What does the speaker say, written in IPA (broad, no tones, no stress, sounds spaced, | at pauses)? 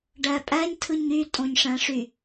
ɖ æ pʼ æ ɲ tʰ ɯ ɲ y tʼ õ ɲ ʂ æ̃ ʂ y